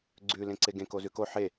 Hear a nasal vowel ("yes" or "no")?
yes